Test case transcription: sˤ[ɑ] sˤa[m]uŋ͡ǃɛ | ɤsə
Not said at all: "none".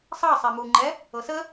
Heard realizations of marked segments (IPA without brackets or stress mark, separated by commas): ɑ, m